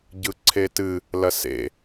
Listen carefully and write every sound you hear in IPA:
ɟɯǀʰetɨ | lɐsḛ

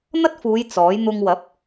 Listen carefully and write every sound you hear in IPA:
n̪ɐ˥t̚fuː˨˧j t͡sɔː˨˥j n̪ʊ˧ŋwɐ˨˥p̚

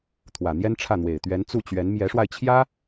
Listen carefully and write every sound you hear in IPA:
t̪ʰwä˨˩n̪jɛ˥nʈ͡ʂʰä˥˩n̪we˨˩ɪ̯ t̪ɥɛ˧˥nt͡su˥˩t͡ɕɥɛ˧˥n mjɛ˧˥ʂwa˧ɪ̯t͡ɕʰjä˥

